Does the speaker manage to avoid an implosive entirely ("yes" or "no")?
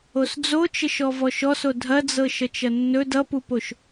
yes